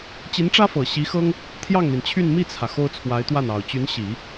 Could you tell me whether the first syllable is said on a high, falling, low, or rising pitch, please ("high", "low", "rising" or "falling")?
rising